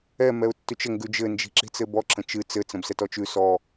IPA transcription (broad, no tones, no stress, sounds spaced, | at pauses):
ɛ m ɛ ʊ̯ tː ʉ t͡ʃ ə ŋ ɡ ʉ d͡ʒ ɘ n d͡ʒ i̤ ǁ i̤ t͡s ɘ b ɔ ǁ ə̃ t͡ʃ ɨ t͡s ɘ t͡s ə̃ b s ɛ t ɔ t͡ʃ ʉ s ɔ